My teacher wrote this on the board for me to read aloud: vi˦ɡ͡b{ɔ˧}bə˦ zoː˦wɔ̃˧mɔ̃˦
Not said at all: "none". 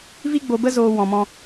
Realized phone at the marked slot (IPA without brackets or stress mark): o˧